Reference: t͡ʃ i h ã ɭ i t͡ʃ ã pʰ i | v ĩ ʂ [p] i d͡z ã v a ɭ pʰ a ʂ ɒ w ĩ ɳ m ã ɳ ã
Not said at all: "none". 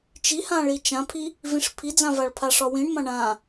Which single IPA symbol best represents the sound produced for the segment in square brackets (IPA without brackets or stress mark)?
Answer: pʰ